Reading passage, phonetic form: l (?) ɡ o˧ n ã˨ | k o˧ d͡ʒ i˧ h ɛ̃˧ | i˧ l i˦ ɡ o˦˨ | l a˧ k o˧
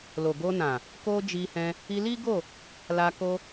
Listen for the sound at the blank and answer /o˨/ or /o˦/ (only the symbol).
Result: o˨